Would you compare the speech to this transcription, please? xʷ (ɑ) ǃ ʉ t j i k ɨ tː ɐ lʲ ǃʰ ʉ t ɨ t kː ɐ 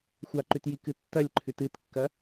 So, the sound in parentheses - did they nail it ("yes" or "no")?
no